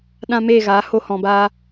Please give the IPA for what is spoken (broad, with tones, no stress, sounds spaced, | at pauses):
ɗ ã˧ m eː˦˨ ɣ aː˨˦ h o˧ h ɔ̃˨ b aː˧